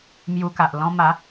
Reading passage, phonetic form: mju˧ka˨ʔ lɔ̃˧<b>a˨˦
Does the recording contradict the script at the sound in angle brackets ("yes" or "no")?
yes